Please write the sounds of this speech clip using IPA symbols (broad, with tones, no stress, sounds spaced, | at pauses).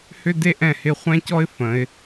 h ʏ˦ d e˦ ʔ ɛ̃˦˨ h ɪ˦˨ χʷ ɛ̃˦ c ɔ˦ ɪ̯ f ə̃˨˦ ɪ̯